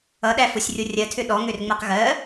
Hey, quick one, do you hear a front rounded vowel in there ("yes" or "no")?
yes